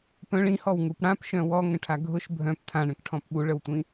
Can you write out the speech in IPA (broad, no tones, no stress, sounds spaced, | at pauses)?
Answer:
p œ̃ ɭ ĩ h ɔ w ŋ u p ɽ ã p ʃ œ̃ w ɔ ŋ ə̃ ʈʰ a ɡʱ ʊ ʃ bʱ œ̃ p tʰ ã ɳ ə̃ k ʈʰ ɔ̃ p ɓ u ɭ ə w tʷ ĩ